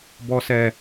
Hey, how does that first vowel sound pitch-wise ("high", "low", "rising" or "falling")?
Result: low